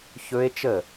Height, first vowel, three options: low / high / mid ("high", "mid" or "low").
mid